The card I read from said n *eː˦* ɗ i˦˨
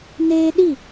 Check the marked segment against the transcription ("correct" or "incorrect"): correct